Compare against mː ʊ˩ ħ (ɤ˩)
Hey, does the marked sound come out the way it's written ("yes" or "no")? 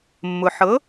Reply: no